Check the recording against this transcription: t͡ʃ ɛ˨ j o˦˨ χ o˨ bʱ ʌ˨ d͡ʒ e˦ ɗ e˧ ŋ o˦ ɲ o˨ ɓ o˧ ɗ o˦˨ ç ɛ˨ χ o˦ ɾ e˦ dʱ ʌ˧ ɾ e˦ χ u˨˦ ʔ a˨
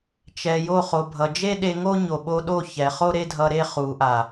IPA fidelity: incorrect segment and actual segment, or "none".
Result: none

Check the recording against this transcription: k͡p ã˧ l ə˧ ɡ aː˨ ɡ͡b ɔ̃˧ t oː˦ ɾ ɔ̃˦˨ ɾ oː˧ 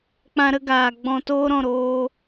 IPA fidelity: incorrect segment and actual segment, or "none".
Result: l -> ɾ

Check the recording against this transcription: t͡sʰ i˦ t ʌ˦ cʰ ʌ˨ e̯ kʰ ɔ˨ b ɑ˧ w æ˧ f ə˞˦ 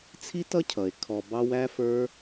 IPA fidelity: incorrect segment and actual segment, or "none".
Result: æ˧ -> æ˦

